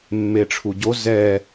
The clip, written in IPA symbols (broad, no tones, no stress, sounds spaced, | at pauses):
mː e ʈ͡ʂʰ u ɟ o z ɛ